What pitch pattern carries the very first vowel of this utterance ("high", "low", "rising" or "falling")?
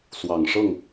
low